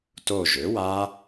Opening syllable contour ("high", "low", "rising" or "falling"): falling